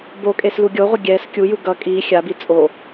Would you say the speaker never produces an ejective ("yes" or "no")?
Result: no